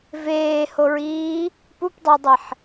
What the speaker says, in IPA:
v eː h o ɹ iː | p u p dˤ o dˤ i ħ

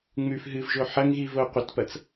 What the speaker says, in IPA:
ŋ͡m ʉ f ɦ ɨ v ʒ o ħ ɐ ŋ ɣ i v o qʷ ɐ t p ɐ t͡s

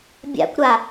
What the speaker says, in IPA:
bʲ a̰ kʷ ɾ a

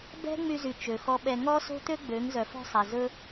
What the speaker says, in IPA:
b ɛ̤˦ ŋ͡m y˧ z y˨ t͡ʃ ø˨ x ɔ˧ ɓ ɛ˧ ŋ ɔ˦ s o̤˦ t̪ ø˦ ɡ͡b ø˨˦ ŋ z œ˨ f ɔ̤˧ sˤ e˨ z ɵ˦

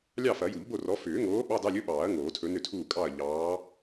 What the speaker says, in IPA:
lʲ ɑ˥˨ f ɐ˨˩˦ j u˨˩˦ ʎ b o˥˨ r ɔ˨˥ f ʏː˨˩˦ ŋ oː˨˥ ɓ ɑ˧˥˧ d ɑ˧˥˧ lʲ ɵ˧˥˧ ɓ ɑː˨˩˦ ɐ̯ ŋ oː˨˩˦ tʰ ɵ˨˥ n ʏ˥˨ tʰ uː˥˨ kʼ ɑ˥˨ ɐ̯ ʎ ɑː˨˥

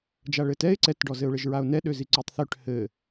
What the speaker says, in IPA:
d͡ʒ a ɭ ɘ t ɛ ɪ̯ ǀ ɛ t ɖ ɔ z ɘ ʊ̯ ɭ ɘ ʒ ɹ a ʊ̯ n ɛ ɗ ø z i ǀ ʉ tˤ θ ø ʈ h ɘ

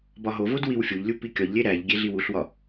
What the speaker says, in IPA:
b ɒ ɦ o v o d w i w fʲ o ʎ lʲ u p i kʲ ɒ ʎ lʲ e ɾ æ ʎ ɡʲ e ɮ i w u ɬ w ɒ

